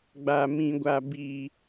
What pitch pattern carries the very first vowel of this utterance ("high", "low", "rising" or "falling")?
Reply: low